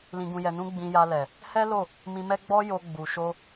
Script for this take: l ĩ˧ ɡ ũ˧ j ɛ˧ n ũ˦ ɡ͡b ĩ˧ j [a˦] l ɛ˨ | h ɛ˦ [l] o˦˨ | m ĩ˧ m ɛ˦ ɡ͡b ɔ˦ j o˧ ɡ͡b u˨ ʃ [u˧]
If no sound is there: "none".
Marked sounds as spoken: a˧, l, o˧

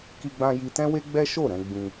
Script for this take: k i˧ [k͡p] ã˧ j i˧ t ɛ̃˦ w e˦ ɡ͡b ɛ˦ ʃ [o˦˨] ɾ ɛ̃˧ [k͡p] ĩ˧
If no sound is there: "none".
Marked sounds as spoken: ɡ͡b, o˦˨, ɡ͡b

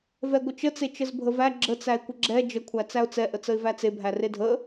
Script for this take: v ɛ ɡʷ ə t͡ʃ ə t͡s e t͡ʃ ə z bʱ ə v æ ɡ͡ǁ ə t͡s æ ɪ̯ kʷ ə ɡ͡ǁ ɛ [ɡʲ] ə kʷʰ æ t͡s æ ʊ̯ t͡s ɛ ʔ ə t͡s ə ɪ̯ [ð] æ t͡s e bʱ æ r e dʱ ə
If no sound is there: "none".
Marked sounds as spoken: d͡ʒ, v

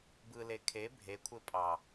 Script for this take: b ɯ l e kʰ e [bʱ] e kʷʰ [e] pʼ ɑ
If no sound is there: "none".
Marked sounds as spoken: bʱ, e

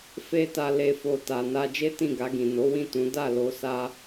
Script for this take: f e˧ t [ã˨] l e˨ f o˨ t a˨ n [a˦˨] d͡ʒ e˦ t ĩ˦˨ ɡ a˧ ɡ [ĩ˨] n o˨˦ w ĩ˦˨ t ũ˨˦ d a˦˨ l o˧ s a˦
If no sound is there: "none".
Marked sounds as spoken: a˨, a˧, ĩ˨

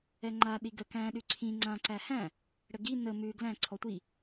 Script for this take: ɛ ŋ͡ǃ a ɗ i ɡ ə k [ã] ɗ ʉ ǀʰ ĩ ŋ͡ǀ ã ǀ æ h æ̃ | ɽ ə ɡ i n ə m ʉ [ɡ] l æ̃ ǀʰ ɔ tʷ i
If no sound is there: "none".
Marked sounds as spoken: æ̃, ɡ

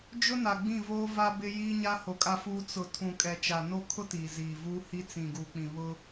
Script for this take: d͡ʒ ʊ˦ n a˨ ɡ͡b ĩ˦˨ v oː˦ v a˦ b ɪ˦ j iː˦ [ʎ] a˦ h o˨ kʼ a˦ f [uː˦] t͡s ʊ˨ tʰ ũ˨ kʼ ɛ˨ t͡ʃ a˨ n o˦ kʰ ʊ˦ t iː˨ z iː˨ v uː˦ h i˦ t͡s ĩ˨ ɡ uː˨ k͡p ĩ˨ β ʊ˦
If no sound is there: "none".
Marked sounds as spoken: ɲ, uː˦

